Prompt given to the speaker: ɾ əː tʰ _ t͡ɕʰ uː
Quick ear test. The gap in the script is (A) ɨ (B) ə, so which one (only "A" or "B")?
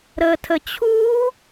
B